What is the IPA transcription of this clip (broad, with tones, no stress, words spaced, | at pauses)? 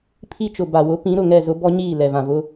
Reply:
pʰi˦t͡ʃʊ˨ ba˨wʊ˨˦ pĩ˨˦ ɾʊ˨ŋɛ˦˨zʊ˦ bɔ˦ɲiː˦˨ lɛ˨vã˨vʊ˦